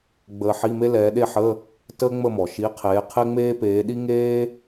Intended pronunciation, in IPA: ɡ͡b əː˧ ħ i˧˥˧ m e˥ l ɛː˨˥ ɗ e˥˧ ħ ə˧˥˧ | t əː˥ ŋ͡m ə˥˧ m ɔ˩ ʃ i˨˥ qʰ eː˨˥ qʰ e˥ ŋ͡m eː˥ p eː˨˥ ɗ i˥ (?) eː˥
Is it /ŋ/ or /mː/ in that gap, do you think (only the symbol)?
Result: ŋ